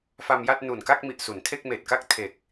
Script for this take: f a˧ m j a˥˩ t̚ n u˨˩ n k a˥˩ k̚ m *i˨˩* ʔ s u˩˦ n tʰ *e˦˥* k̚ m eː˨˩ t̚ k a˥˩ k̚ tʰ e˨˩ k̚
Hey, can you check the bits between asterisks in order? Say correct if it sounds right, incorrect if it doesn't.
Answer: correct, incorrect: e˥˩

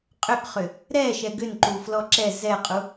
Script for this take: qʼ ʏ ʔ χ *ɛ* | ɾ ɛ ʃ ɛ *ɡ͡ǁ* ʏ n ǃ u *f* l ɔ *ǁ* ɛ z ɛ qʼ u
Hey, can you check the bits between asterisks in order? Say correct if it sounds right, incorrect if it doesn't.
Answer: incorrect: ʏ, incorrect: ɡ, correct, correct

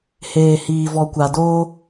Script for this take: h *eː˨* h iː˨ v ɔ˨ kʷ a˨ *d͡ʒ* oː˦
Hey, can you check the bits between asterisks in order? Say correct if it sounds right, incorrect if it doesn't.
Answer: correct, incorrect: d

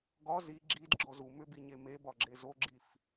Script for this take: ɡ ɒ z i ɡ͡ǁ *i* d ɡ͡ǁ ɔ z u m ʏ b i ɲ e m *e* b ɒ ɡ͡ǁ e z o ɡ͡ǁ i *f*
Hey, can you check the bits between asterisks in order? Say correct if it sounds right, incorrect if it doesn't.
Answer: correct, correct, correct

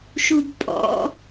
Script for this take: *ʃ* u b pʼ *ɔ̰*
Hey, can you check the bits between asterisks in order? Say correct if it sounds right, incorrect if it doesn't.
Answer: correct, correct

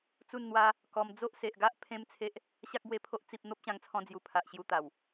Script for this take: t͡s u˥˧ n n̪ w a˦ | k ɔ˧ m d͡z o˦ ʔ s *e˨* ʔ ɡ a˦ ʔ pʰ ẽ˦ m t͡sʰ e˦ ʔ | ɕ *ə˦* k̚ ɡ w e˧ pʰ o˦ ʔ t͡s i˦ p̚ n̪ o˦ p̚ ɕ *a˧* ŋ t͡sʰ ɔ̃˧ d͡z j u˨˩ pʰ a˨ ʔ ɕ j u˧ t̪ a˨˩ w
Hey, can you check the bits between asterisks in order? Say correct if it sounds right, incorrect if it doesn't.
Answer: correct, incorrect: a˦, incorrect: ã˧

